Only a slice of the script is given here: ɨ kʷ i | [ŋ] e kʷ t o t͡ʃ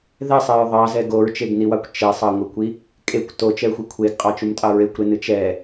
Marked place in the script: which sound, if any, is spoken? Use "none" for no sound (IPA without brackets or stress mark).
kʼ